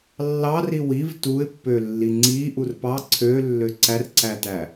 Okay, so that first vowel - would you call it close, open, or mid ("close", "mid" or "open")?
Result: open